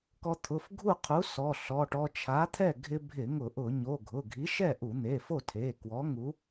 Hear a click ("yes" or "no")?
no